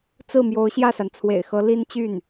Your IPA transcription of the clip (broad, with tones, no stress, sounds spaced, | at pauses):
t͡s ɹ̩˥˩ m j o˧˥ ʊ̯ ɕ j ä˥˩ s a˩ n t͡sʰ w ḛ˨˩ ɪ̯ x ɤ˧˥ l i˥ n t͡ɕ y˥˩ n